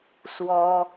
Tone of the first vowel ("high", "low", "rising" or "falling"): high